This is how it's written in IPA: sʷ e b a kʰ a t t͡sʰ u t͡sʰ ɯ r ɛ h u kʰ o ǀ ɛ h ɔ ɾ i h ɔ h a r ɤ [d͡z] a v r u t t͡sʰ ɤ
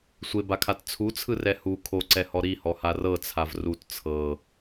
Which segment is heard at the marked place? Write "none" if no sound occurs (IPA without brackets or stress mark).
t͡sʰ